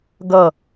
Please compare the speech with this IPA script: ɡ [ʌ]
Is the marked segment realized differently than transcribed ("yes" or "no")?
no